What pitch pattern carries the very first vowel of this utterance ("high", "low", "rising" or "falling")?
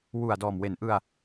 low